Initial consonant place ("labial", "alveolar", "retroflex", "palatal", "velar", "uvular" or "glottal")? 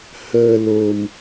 glottal